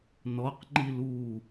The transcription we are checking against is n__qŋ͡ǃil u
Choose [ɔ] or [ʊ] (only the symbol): ɔ